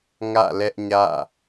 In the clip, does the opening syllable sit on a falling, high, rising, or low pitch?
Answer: falling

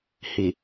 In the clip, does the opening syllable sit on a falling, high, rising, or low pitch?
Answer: low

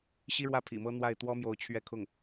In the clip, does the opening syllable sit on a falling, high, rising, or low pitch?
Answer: high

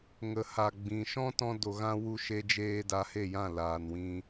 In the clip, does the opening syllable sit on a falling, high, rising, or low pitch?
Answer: low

